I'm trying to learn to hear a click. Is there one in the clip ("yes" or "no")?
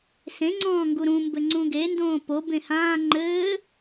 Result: yes